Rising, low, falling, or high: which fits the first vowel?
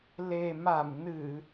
low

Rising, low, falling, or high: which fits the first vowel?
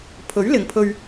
rising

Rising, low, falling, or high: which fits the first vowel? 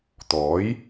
rising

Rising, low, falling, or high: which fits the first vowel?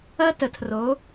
high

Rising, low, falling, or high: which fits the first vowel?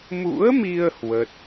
rising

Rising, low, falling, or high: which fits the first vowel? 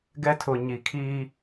high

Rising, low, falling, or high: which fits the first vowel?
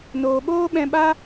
low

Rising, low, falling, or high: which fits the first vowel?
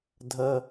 low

